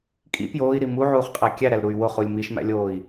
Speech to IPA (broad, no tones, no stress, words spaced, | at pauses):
kʼḭ pjoːi̯ɾi muʕuːχqʼæ kʲæɾælɾuy̯ woχulʲ miʃmæ̰lʲoːi̯